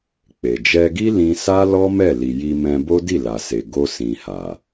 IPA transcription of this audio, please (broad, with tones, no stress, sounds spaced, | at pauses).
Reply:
k͡p e˨ d͡ʒ ɛ˧ ɡ i˦ l ĩ˧ s a˦ l ɔ˦ m ɛ˦˨ l i˨ j i˧ m ɛ̃˧ b o˦ d i˦˨ l a˨ s e˨ ɡ o˧ s ĩ˨ h a˨